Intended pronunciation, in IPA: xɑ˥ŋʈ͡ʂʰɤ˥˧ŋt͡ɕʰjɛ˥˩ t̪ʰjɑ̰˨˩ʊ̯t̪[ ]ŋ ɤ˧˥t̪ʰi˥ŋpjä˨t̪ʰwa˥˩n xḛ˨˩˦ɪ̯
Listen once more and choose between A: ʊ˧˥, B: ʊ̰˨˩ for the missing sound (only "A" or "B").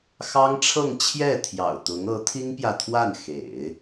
A